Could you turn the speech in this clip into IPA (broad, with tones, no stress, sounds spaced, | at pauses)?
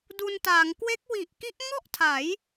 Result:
d u˧ n t aː˩˦ ŋ k w e˦˥ k̚ w i˨˩ ʔ k i˦˥ ʔ ŋ ɔ˥˩ ʔ tʰ a˩˦ j